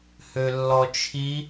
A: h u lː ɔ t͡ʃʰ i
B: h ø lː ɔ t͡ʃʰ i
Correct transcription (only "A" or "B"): B